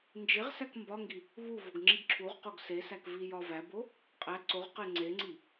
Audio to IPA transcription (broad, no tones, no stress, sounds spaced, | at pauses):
n d͡ʒ e ʁ s æ k m b ɒ ŋ ɡ i | β u v o ɡ ŋ͡ǁ i ɡ ǁʰ u ʁ q o ɡ s e s æ k v i j ɒ v æ b o | qʼ æ ǀ o ʁ q e ŋ͡ǀ e ŋ͡ǀ i